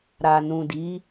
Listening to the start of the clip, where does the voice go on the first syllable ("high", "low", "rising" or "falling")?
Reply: low